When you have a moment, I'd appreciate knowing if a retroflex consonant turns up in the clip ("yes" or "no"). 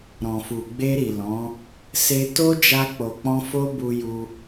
no